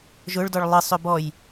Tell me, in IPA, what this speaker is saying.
ʒ ʊ ɭ d ɔ ɭ lˠ ɨ sˤ ø b ɔ j

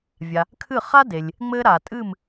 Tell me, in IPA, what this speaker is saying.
vʲ a˩ | kʰ ɨ˥˩ χ a˥ d e˩ lʲ | ŋ͡m ɘ˧ ɾ a˩ tʼ ɨ˥˩ m

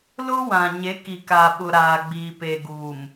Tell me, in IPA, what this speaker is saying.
l ʊ˦ w ã˨ ɲ e˨˦ k i˨ k aː˨ ɓ ʊ˨ ɾ aː˨ ɡ͡b iː˨ p e˨ ɡ uː˨ m

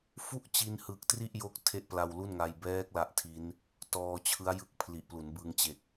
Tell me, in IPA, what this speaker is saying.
f u˥˩ ʔ t͡ɕ i˧ n h ɯ˨˩ k̚ t r i˥˩ ʔ j o˦˥ k̚ tʰ e˥˩ ʔ p l a˧ w l u˥˩ n ŋ a˧ j b ɛː˦˥ k̚ l a˦˥ ʔ tʰ i˦˥ n | t ɔː˧ t͡ɕʰ ɯ˦˥ a̯ j ɯ˦˥ k̚ pʰ l i˨˩ ʔ p l u˩˦ n b ɯ˧ ŋ t͡ɕ e˨˩ k̚

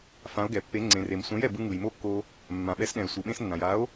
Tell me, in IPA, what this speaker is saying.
f ã˩˥ o̯ ɡ ɛ˩ pː e˩˥ ŋ͡ǀ ẽ˩ r e˩ m sʷ ɛ̃˩˥ j ɛ˩ b ɯ˧ ŋ ɯ˩ j m o˥˩ kː o˧ | mː ã˩ ɓ ɛ˩˥ s ɗ ɛ̃˩ e̯ sʷ ɯ˩ ɓ ẽ˧ s nː ã˩ j a˩˥ o̯

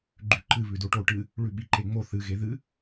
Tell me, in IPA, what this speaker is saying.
ɡ͡ǃ ʉ ǃ ɨ β ʉ d o ʈ o ʈ ɨ | ɭ ʉ ɓ i ǃ e ŋ͡m o θ ɨ ɣ e ð ɨ

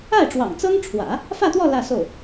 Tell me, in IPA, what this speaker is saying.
a˥˩ ɪ̯ ʈ͡ʂ w ɑ̰˨˩ ŋ t͡s ɤ˥ ŋ ʈ͡ʂʰ w ä̰˨˩˦ | f ä˥˧ t̪ w ɔ˥˧ l ä˥˧ s o˥˩ ʊ̯

